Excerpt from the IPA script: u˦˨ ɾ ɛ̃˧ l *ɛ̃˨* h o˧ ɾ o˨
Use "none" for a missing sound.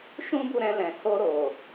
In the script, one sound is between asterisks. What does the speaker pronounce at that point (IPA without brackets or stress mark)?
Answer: ɛ̃˨